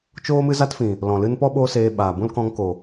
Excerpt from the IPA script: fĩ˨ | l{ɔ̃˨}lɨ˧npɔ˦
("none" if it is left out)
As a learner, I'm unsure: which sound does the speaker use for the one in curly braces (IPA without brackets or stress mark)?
ɔ̃˨